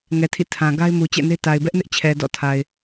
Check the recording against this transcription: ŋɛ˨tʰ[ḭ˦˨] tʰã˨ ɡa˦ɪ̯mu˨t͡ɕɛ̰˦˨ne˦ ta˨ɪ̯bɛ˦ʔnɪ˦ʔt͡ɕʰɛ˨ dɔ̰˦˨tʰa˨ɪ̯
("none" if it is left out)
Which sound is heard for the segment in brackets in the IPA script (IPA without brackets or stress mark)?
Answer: ḭ˦˨